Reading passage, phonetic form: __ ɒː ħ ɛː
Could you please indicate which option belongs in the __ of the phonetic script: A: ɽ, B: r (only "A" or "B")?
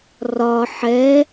B